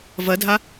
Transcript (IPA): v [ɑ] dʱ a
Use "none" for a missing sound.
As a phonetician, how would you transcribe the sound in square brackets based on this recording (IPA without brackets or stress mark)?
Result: ɐ